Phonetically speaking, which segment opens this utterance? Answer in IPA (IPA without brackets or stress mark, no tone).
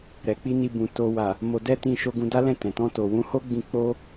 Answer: ɾ